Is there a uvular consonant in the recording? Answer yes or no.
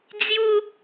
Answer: no